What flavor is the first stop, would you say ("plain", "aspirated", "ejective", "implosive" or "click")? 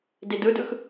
plain